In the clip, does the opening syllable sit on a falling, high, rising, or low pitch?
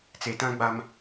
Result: low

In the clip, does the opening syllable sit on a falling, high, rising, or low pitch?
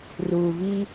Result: low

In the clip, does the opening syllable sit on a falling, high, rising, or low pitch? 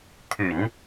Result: low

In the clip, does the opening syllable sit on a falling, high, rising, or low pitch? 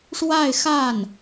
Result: falling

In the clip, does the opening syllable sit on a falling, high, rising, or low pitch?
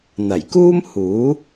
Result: low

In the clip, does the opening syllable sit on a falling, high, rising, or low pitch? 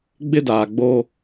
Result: high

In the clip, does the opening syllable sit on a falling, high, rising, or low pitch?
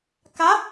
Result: rising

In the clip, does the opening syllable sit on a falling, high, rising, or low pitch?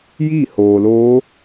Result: falling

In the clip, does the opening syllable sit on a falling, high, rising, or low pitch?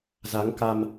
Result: rising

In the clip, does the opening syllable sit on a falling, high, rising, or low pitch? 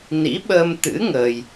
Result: rising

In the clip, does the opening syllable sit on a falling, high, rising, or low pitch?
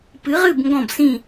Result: rising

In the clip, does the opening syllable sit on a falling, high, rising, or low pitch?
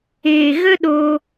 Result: low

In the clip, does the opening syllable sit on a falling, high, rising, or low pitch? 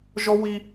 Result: high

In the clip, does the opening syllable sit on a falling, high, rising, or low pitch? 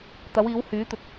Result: rising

